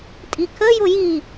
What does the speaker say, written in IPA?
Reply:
tʼ i kʰ ə j ʊ j i

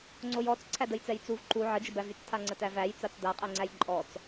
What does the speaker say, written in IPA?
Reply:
ŋ͡ǀ o j ɔ t͡s ǀʰ æ d ə j t͡s ɛ j t͡s u v ǃ u ʕ ə d͡ʒ ə b æ v y t͡s tʰ a ŋ͡ǀ ə t æ v æ j t͡s a t͡s d a qʼ ɛ ŋ͡ǀ æ j ǃʼ ɔ t͡s

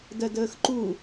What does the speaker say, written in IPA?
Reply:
d ɜ d əː x ǃ u

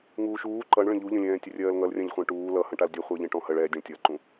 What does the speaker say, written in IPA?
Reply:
ŋ uː ʃ uː ǃ ʌ ɳ ɭ ə̃ ʎ u ʎ ə̃ lʲ ɛ̃ː tʲ ə rʲ ɜː l ŋ ʌ l rʲ ã ʎ χʷ ɛ̃ ʈ uː l ʌ h ə̃ ʈ a l dʲ ə χʷ ə˞ ʎ ẽ ʈ ɔ̃ h ə ɭ ɛ dʲ ə̃ ɭ tʲ ʌ ǃ ũ

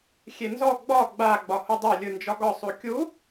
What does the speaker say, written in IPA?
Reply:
xʲ e n z ɔ ɡ͡b ɒ ɡ͡b a ɡ͡b ɒ h u dˤ a lʲ ɯ n d͡ʒ ɒ ɡ ɒ sˤ u kʲ u

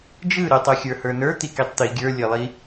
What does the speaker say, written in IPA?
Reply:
d͡ʒ ɯ ɾ ʊ tˤ ɯ xʲ ə˞ h ə˞ n ə˞ t̪ i k i tˤ t̪ i ɡʲ ə˞ lʲ ɘ lˠ i

